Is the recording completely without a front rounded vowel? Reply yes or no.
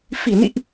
yes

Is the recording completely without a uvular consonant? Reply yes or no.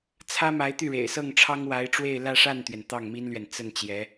yes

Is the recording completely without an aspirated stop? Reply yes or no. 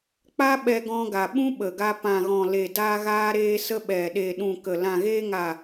yes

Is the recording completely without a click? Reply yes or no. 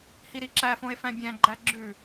no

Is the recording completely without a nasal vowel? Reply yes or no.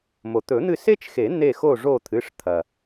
yes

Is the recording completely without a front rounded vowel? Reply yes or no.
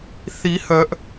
no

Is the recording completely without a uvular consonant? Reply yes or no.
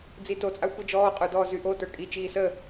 no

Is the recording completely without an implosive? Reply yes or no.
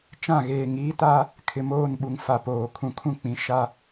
no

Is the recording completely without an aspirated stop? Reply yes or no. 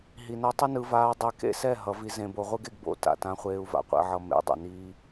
yes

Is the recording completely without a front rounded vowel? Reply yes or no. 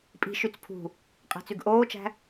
no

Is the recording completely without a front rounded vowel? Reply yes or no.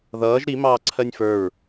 yes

